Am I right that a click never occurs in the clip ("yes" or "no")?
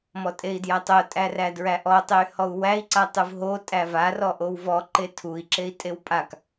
no